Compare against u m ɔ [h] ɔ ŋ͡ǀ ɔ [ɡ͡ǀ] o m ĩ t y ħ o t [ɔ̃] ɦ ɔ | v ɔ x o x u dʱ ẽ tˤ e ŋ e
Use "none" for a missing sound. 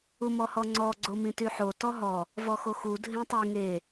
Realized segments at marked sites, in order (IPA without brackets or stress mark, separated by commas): h, ɡ͡ǀ, ɔ